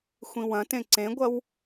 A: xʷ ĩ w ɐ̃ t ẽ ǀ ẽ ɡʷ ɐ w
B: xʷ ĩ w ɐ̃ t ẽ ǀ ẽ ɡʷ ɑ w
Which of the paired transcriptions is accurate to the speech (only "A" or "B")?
A